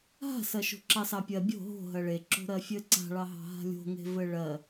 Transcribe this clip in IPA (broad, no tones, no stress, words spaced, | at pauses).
ɦa̤sɜʃo̤ ǁɑsɑpʲɜ bʲo̤ ɦo̤ ɦɜɭe ǁo̤ɾɜfʲɘ ǀa̤ɭɑɦɑ̤ ɦa̤lʲo̤ŋe̤ vɘɭɜ